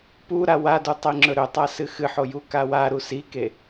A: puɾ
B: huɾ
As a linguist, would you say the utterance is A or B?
A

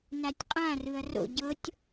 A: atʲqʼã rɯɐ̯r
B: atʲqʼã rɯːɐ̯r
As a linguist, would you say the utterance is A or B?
A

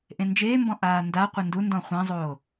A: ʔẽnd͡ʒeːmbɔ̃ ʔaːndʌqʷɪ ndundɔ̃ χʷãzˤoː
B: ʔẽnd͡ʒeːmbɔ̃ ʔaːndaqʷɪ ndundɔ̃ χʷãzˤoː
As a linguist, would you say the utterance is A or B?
B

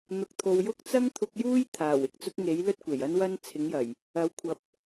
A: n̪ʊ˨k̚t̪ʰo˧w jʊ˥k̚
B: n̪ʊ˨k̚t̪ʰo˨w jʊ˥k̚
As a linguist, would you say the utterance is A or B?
B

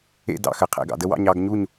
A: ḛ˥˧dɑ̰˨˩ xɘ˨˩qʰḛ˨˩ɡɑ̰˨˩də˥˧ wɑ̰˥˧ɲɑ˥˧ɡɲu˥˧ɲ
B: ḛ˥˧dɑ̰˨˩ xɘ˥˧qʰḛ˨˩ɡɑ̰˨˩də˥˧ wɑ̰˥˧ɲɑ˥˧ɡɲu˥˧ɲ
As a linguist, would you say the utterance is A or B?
A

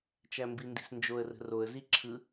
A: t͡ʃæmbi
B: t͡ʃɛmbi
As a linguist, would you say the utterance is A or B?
A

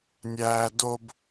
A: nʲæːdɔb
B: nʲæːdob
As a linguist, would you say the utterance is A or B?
B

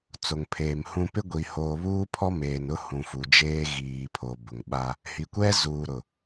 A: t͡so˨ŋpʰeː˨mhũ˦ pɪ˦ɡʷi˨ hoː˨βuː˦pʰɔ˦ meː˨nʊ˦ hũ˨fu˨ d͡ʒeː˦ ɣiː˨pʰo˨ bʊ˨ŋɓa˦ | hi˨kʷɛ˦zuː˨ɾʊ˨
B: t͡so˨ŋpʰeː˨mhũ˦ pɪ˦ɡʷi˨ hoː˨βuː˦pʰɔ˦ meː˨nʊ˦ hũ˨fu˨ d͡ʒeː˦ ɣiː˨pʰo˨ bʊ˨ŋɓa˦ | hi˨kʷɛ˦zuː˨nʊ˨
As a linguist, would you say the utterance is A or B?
A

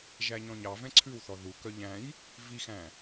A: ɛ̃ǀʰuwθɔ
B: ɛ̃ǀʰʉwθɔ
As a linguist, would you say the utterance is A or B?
B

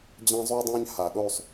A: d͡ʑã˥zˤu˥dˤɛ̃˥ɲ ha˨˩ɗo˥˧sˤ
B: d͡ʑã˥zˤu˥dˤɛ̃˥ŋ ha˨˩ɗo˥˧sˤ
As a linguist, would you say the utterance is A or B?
A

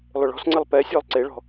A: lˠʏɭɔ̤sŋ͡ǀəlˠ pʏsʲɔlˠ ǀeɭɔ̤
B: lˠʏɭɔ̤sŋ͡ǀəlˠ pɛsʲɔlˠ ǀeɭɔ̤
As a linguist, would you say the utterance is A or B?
B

